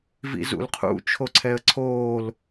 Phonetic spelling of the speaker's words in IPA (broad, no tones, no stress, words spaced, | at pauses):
vḭzṵlqʰṵ t͡ʃʰoǀʰɛə̯ǀʰoːl